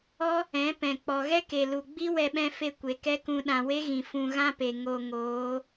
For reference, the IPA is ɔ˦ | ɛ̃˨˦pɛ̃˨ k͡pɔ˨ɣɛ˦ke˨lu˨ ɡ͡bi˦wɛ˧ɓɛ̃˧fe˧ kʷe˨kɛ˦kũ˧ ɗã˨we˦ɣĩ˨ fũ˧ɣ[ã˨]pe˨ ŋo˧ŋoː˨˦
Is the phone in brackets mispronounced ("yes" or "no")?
yes